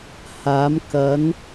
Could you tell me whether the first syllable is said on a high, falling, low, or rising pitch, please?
rising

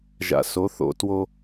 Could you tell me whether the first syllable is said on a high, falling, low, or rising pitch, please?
low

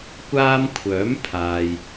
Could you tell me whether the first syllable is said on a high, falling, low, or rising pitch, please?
high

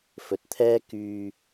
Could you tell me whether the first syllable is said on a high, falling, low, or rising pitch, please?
rising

